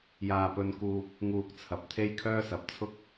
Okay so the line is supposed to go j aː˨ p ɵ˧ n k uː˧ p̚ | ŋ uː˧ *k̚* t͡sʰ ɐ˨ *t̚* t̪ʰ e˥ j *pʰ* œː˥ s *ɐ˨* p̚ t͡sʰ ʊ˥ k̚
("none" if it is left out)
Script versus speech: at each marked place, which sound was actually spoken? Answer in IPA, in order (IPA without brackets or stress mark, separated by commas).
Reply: k̚, p̚, kʰ, ɐ˨